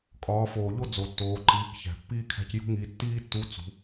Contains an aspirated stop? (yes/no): yes